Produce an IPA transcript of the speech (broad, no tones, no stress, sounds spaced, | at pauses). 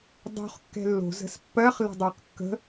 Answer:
dˤ o̤ χ kː ɛ̤ lː o̤ z ə̤ s pː ɜ χ l ə̤ dˤ ə˞ q kː ə̤